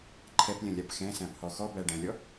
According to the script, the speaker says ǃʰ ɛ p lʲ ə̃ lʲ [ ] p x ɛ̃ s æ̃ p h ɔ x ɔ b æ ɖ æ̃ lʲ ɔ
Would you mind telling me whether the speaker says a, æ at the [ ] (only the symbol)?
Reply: a